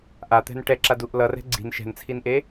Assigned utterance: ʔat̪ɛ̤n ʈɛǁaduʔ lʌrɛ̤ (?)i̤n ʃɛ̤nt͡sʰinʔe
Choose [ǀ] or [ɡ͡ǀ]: ɡ͡ǀ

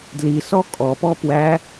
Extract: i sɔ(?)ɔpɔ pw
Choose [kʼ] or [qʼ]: kʼ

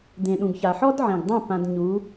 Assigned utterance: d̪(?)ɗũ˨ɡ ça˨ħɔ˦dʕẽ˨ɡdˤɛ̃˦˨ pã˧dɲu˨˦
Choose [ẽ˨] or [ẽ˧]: ẽ˨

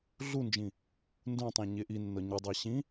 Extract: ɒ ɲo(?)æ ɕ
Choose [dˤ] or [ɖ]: dˤ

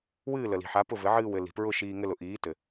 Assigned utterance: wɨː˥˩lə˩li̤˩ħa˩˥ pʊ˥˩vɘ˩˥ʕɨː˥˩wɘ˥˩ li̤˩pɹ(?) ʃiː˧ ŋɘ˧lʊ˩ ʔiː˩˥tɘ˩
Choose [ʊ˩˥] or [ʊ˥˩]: ʊ˥˩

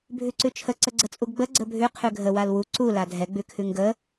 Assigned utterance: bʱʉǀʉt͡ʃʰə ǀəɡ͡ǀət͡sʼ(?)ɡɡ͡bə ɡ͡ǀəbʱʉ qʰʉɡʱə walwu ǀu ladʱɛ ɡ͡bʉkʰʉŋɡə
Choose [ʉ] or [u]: u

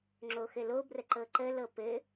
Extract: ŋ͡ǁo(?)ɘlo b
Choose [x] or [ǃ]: x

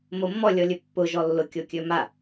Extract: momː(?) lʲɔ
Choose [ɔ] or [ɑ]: ɔ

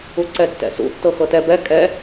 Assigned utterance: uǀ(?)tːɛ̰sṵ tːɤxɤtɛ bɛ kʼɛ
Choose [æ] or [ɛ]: ɛ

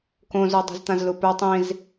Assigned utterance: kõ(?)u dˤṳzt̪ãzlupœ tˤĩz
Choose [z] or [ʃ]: z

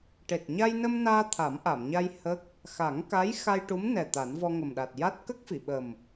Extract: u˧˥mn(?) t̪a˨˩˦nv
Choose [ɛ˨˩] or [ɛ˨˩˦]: ɛ˨˩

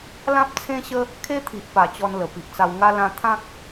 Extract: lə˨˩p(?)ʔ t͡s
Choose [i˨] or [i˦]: i˨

